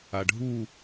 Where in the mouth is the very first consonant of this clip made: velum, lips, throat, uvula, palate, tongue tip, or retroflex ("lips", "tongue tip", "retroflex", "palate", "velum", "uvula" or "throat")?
retroflex